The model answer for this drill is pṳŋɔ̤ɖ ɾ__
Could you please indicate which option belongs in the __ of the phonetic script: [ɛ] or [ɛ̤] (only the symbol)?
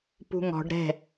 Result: ɛ̤